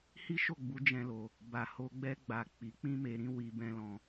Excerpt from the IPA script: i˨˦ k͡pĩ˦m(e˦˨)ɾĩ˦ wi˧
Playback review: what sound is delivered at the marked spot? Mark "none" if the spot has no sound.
e˧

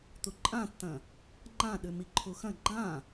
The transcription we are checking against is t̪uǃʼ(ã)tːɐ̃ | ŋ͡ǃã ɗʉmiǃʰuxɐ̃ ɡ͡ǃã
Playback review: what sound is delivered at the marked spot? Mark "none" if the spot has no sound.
ã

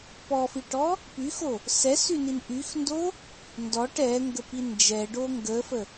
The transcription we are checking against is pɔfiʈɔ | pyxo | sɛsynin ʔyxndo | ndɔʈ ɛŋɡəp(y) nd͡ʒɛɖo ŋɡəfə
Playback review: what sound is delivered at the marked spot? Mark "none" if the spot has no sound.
i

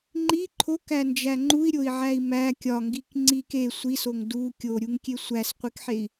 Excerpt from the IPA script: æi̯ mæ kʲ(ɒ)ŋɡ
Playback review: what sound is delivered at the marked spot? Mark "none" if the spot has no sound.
ɒ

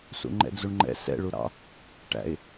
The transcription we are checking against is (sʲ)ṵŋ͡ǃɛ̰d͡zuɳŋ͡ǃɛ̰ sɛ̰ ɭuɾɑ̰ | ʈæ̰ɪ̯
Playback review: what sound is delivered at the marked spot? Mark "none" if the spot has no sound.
s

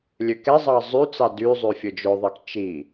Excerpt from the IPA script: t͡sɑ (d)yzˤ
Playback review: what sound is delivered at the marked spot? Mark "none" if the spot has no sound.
d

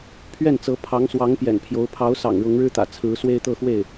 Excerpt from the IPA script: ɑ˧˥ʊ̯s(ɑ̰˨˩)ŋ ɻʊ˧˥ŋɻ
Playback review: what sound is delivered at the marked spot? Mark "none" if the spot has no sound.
ɑ̰˨˩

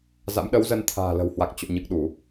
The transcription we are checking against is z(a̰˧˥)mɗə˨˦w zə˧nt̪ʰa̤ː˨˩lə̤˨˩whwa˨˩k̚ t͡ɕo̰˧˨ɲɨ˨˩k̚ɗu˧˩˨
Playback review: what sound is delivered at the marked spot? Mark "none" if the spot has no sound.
a̰˧˥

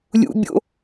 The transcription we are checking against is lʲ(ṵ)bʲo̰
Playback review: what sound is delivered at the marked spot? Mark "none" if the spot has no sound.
ṵ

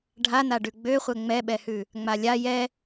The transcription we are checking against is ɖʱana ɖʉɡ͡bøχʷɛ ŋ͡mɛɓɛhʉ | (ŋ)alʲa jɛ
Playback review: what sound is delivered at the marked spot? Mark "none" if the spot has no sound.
ŋ͡m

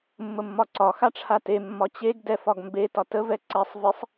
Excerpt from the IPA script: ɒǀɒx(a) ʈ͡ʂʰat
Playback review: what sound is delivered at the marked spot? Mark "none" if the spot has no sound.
a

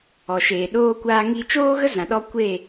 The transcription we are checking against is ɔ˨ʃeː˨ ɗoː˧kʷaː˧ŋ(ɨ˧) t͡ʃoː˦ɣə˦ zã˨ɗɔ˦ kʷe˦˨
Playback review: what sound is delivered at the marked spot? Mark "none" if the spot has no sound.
i˧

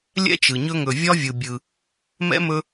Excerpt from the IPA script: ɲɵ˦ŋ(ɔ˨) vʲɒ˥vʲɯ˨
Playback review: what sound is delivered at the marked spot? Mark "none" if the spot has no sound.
ɵ˨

